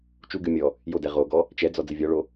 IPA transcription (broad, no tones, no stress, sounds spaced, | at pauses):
t͡ʃ u ɡ ɨ mʲ ɔ | j o d ɛ ʁ o ɡ ɔ | t͡ʃ ɛ d͡z ɔ d͡z ɨ vʲ ɔ ɭ o